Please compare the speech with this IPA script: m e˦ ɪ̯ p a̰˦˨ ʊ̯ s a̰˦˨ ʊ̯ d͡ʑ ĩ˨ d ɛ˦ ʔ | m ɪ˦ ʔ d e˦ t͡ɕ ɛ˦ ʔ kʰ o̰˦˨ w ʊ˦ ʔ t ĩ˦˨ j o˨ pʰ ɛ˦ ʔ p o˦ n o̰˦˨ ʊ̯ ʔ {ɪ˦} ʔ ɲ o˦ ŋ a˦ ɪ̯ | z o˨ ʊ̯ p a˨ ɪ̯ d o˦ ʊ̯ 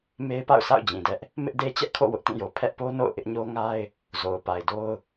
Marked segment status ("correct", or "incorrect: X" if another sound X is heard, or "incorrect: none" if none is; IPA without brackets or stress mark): correct